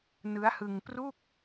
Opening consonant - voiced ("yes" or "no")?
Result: yes